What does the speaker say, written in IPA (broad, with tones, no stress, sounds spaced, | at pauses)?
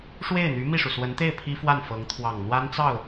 ʂ w e˥˩ ɪ̯ n̪ y˧˥ m i˥˩ ʂ u˩ s w ə˧˥ n t̪ e˥˩ ɪ̯ pʰ i˥ f w a˥˩ n f ɤ˧˥ ŋ t̪ʰ w ɑ˨˩ ŋ n̪ w a˥ n t͡s ɑ˥˩ ʊ̯